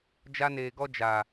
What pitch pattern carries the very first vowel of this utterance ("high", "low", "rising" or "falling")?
high